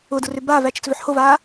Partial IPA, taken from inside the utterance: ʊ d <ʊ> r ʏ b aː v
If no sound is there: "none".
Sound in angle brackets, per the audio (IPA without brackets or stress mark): ʊ